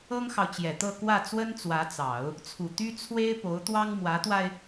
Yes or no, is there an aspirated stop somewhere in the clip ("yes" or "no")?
yes